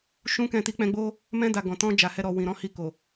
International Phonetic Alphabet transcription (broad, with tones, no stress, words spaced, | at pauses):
ʃũ˦kɛ̃˦˨ ti˧k͡pɛ̃˧ɡ͡bo˦ | mɛ̃˧da˨ ɡɔ̃˨tɔ̃˧ d͡ʒa˨hɛ˧ɾɔ˨ wĩ˨ɾɔ̃˨˦hi˧ko˨